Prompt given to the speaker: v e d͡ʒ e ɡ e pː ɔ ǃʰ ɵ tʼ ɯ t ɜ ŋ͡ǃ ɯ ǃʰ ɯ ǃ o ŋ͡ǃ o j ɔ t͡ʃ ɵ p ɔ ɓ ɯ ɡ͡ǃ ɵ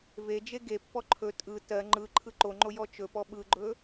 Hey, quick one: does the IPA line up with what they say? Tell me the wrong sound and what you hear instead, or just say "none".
none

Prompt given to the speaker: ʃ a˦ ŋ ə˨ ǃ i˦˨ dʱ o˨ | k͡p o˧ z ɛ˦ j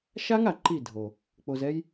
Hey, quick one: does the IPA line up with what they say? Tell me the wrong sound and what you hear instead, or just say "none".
ə˨ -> a˨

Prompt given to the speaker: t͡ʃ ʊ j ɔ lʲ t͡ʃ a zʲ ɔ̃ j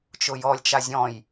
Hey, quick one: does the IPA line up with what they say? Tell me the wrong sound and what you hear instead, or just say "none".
none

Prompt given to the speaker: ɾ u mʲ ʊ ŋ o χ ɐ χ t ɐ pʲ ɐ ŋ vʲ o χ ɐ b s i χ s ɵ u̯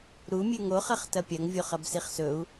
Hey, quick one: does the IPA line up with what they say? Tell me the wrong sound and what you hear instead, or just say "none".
ʊ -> ʉ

